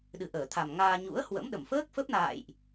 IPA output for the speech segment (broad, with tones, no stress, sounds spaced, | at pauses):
ɗ ɨ˨˩ ʔ əː˧˩ t̪ʰ a˨˩ m ŋ aː˧ ɲ ṵ˧˥ ə̯ h w ə̰˧˥ m ɗ ə˧˩ m f əː˦˥ k̚ f ə˦˥ p̚ n a̰ː˧˨ j ʔ